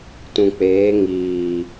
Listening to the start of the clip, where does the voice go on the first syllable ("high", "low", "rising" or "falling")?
low